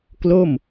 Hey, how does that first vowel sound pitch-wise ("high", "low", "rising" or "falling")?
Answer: falling